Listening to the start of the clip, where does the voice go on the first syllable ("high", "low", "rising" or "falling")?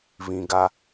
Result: low